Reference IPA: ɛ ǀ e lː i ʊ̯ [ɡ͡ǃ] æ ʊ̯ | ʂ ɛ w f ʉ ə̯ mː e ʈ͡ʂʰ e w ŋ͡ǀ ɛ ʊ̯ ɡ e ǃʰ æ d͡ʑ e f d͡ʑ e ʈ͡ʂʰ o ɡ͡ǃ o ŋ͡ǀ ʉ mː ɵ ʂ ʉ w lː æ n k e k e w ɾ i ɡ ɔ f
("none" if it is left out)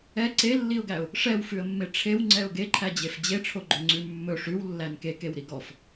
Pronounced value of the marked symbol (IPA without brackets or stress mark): ɡ